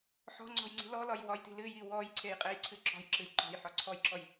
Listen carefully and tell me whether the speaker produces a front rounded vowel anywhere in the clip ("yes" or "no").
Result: no